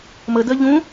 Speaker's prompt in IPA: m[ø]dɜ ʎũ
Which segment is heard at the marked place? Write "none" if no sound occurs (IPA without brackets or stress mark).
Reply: ə